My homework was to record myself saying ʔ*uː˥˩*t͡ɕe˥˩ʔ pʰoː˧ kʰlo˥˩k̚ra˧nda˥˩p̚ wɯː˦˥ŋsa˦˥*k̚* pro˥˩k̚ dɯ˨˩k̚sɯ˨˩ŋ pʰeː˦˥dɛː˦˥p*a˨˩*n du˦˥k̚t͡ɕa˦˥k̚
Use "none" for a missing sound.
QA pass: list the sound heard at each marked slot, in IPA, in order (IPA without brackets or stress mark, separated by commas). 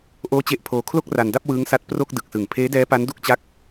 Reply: oː˥˩, t̚, a˦˥